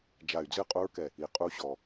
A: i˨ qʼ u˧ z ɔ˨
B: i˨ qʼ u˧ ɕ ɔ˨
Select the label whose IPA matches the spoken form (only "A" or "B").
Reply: B